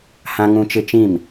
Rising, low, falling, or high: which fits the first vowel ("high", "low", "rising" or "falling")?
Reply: high